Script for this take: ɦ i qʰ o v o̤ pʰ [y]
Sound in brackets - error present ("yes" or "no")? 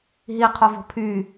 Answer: no